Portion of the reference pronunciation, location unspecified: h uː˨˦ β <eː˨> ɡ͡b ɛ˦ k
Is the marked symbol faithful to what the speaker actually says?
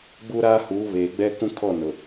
yes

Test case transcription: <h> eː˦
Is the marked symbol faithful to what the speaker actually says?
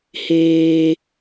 yes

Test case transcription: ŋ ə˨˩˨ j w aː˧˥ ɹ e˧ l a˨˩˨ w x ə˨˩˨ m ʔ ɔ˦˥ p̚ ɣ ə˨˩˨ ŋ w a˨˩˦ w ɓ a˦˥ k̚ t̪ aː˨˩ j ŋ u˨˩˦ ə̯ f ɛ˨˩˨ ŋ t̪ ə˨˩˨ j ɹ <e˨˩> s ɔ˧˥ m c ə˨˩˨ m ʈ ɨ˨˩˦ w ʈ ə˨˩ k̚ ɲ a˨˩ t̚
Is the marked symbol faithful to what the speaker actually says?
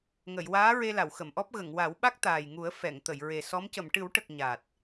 yes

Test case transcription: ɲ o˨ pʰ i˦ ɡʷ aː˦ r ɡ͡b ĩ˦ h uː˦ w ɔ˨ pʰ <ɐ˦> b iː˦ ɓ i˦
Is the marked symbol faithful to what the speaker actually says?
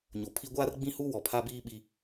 no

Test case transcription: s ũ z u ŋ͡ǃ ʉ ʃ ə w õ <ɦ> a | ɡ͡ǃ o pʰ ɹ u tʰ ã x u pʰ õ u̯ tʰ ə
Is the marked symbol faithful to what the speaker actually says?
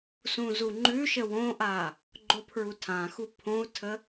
no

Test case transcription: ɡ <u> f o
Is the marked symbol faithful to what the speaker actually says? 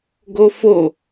no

